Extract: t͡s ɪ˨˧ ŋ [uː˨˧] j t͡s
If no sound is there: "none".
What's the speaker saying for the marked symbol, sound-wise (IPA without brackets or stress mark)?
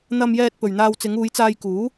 uː˨˧